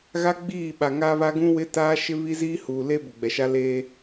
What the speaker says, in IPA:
ɣ a˦ ɡ͡b iː˦˨ ɓ a˨ ŋ aː˦ β a˦ ɡ ũ˦ w ɪ˦ t aː˦ ʃ ɪ˦ β i˦ z iː˦ h uː˨ l e˦ b ʊ˨ ɡ͡b ɛ˨ ʃ a˦ l eː˦

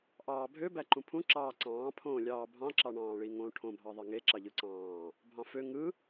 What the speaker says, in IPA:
ʔ ɑː bʱ ø b æ ǃ ũ pʰ ũ ǁ ɑː ǀ ɑ̃ː pʰ õː lʲ ɑː bʱ ɑ̃ ǁ ɑ ɳ ɑ̃ː ɭ i ŋ õ ʈʰ õ bʱ ɑ ðˤ e ŋ e ǁ ɑ ʎ ɯ ǀ ɑ̃ː | bʱ ɑ̃ f ø ŋ ɯ

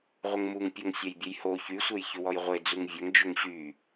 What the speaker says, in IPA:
ʁʷ ə ŋ m u ŋ pʲ o ŋ sʲ ɐ j bʲ ə j h o ç y sʷ e j ç ʏ w ɔ j ʁʷ e d͡z u ŋ vʲ ɐ ŋ d͡ʒ ʏ ŋ ɕ y

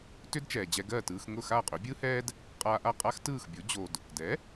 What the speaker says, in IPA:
t ʏ˥ d t͡ʃ ɛː˩ d͡ʑ ɛ˧ ɡ ɜ˥˩ t ɯː˧ x ŋ ʊ˥˩ x a˥˩ qʼ ʏ˩˥ bʲ ɯː˥ h ɛː˥ d | qʼ aː˧ ʔ a˥˩ qʼ a˥ x t ɯː˥˩ x bʲ o˩˥ d͡ʑ o˩ d | d ɛ˩˥

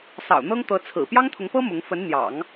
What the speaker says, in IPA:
s ɑ̰˨˩ ʊ̯ n̪ ɤ˥ ŋ t̪ ɤ˧˥ t͡sʰ ɹ̩˨˩ p j ɑ˥ ŋ t̪ʰ ʊ˧˥ ŋ p ɤ˥ m ʊ˧˥ ŋ f ə˧˥ n n̪ j ɑ̰˨˩˦ ŋ

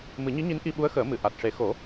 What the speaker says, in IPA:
m ɨ˨˩˦ ɲ i˧˥ ɲ i˧˥ n ʔ i˧ ɓ u˧˥ ə̯ x əː˨˩˦ m ɨ˨˩˨ ʔ a˨˩ t̚ ʂ e˨˩˦ x o˨˩˦

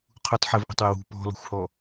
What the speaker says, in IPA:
qʰ u tˤ ħ ɘ v ʔ ɔ̤ tˤ w ə w ṳ p ɔ̤ l ɔ̤ xʷ h ɔ

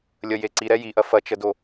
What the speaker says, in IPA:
lʲ ə j e ǀ i ɾ ɛ j i ʔ ɐ f ɐ t͡ʃ ə d o

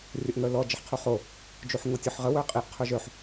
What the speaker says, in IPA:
rʲ ə ʔ ŋ œ l ɔ d͡ʒ ə ħ qʰ u χ o | d͡ʒ u ħ ŋ o tʲ ʊ ħ ʁ ə w œ qʼ i ʔ qʰ ʊ ʒ œ ħ

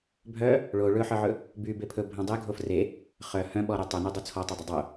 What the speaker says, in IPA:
bʱ œ | ɭ o ɭ ɵ ħ œ ʕ ɵ | b y b e pʰ ɵ bʱ œ̃ dˤ e ɡʱ o f r e | χ œ h œ̃ ɓ ɔ ɾ y tˤ œ n e dˤ o t͡sʰ ɔ tˤ o dˤ ɵ dˤ o

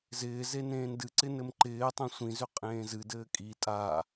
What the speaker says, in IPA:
z ɪː z e n ẽː n d ɨ ǀ ɪ n ɘ m ǃ ɪː tˤ ẽ sʷ ĩ z ʏ qʼ ẽː z ɨ d ɘː kʼ i tʼ a

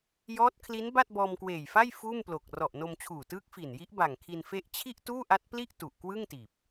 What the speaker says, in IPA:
j ɔː˦˥ t̚ kʰ l i˦˥ n b a˥˩ t̚ b ɔː˧ m k w eː˨˩ j f a˥˩ j f uː˥˩ m p l o˨˩ k̚ r ɔ˨˩ ʔ n o˧ m t͡ɕʰ uː˨˩ t ɯː˦˥ k̚ f i˨˩ n j i˦˥ ʔ b a˨˩ ŋ kʰ i˧ n f e˦˥ ʔ t͡ɕʰ i˥˩ ʔ t uː˥˩ ʔ a˦˥ t̚ p l i˥˩ ʔ t u˨˩ ʔ k w ɯ˥˩ ŋ t iː˨˩ p̚

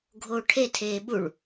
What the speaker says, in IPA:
ɡʱ oː ʈʰ e tʰ eː ɓ u ɭ

